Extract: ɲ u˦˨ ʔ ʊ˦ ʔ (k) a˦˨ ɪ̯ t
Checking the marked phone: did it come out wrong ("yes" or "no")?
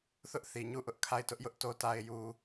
yes